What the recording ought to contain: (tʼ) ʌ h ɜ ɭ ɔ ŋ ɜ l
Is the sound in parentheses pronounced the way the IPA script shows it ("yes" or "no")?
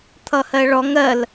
no